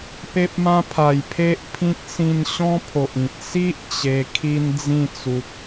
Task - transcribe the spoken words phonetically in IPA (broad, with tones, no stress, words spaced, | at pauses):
pe˦p̚mã˦ pʰa˨˩jpʰe˦ʔpʰĩ˦k̚ sĩ˧n ɕɔ̃˦pʰo˨ʔ ĩ˨t̚ si˦ʔ t͡ɕe˧kʰi˦n d͡zĩ˥˧t͡su˨k̚